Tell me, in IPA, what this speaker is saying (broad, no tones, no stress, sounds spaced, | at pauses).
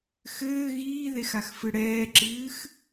x ɘː ɣ iː ð e x a x f ɨ ɽ ɛː ǁ ɨː x